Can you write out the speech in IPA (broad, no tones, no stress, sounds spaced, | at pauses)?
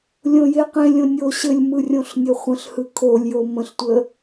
lʲ õ j e q ẽ lʲ õ nʲ o ɕ ɘ lʲ m ɯ rʲ õ ɬ nʲ ɘ χʷ ə̃ ɬ h ɯ kʰ o lʲ j o m ə̃ ɬ tʷ ə